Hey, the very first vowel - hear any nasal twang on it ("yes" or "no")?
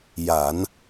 no